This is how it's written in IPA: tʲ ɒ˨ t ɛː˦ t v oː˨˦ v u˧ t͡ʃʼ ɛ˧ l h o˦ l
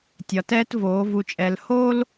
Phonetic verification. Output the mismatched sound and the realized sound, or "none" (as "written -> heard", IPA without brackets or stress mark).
none